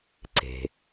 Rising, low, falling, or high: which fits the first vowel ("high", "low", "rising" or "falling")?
low